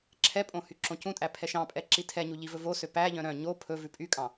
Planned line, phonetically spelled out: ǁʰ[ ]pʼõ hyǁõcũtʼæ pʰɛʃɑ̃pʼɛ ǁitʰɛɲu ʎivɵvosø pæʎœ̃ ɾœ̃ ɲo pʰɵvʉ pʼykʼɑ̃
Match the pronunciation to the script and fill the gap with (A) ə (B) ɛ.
B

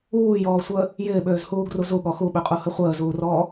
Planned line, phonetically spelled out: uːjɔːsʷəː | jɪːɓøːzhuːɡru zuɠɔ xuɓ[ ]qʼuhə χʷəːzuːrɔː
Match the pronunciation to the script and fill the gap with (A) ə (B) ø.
B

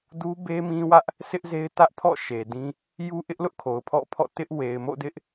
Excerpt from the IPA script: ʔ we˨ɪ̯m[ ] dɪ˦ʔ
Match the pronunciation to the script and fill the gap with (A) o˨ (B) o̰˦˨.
B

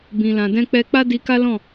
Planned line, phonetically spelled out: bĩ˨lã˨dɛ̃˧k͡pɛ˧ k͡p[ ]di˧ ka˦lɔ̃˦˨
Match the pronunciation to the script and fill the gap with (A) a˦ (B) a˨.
A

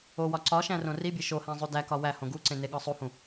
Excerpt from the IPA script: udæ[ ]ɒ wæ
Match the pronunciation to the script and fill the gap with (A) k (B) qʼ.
A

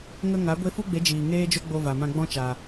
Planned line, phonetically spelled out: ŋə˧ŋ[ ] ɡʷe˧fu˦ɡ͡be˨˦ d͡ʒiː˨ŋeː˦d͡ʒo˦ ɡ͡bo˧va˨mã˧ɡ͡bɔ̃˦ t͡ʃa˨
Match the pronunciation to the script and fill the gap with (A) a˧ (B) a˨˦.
B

